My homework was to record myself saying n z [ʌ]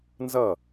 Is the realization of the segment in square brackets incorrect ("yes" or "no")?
no